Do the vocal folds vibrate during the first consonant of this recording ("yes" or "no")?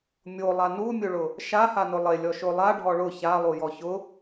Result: yes